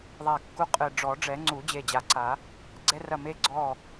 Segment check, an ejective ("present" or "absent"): present